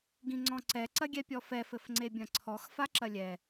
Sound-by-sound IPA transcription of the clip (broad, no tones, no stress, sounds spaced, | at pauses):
ɡ ĩ ŋ͡ǀ ɔ̃ ǀ ɛ ǀ ɐ ɡʲ ɛ pʲ ɔ f ɛ f ɘ f ŋ͡ǀ e bʲ ɐ̃ ǀʰ ɔ x f a ǁ ɐ lʲ ɛ